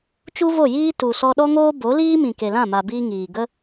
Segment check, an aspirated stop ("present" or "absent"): absent